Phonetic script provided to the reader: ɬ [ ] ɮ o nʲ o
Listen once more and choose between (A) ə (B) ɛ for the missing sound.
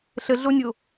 A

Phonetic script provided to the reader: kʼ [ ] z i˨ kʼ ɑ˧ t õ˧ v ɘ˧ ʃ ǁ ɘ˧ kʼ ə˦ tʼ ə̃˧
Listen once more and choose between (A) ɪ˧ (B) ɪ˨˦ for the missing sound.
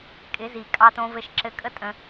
B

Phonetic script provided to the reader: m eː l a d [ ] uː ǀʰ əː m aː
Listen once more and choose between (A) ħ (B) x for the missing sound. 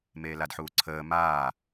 A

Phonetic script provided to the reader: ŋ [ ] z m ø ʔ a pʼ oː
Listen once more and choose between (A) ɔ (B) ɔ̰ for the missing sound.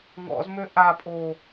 B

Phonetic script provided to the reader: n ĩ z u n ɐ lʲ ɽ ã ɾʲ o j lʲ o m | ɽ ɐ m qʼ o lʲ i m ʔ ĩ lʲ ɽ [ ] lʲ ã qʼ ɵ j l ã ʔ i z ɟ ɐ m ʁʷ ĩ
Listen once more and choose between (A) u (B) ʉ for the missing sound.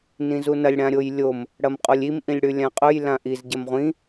B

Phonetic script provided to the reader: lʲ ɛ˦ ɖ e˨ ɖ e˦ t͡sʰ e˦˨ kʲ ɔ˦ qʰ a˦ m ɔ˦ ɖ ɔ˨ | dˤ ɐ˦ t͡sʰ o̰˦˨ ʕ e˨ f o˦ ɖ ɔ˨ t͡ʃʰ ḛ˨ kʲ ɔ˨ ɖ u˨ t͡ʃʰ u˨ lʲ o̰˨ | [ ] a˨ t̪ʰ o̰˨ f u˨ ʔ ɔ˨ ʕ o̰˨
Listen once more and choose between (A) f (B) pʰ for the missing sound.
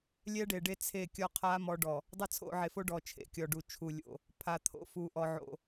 B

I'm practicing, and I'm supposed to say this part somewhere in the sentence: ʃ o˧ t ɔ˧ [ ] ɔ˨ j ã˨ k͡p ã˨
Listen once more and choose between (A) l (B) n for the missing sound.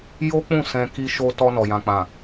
B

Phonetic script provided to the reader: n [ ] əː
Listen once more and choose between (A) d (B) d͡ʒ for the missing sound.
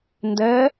A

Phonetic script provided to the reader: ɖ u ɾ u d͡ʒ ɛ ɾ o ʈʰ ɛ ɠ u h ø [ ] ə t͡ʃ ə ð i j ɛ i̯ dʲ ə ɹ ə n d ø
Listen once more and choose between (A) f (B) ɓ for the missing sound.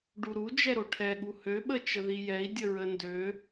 B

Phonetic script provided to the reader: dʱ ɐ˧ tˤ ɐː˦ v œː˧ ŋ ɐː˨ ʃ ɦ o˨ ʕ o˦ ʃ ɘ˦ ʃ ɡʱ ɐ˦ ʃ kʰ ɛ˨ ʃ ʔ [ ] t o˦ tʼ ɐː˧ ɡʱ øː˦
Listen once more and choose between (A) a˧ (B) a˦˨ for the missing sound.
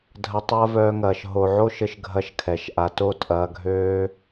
A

